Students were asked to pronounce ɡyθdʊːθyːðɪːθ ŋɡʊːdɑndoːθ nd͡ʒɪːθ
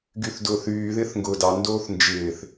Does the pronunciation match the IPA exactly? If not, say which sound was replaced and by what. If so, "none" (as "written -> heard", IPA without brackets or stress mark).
none